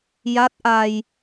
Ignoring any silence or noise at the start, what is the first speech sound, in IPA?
j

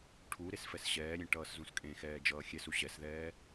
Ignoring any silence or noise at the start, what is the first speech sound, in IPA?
ʈʰ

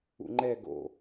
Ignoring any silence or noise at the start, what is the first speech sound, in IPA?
ṵ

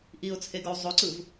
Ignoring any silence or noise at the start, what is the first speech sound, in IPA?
ʔ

